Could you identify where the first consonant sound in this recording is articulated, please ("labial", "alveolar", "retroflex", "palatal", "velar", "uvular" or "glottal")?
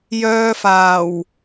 palatal